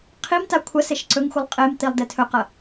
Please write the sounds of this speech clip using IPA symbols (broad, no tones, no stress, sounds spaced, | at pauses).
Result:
qʰ i m t a kʷʰ ɐ s e ʃ ǀ ɵ ŋ xʷ ɨ lˠ qʼ e m t̪ i lˠ d e tʰ ɵ q ɐ